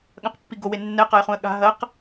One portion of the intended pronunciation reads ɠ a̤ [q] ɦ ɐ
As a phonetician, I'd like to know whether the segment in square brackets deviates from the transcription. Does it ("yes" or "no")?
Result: yes